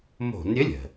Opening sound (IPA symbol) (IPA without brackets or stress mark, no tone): m